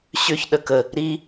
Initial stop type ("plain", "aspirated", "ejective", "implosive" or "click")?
implosive